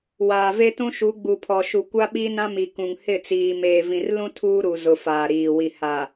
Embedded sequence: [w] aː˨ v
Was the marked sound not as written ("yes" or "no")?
no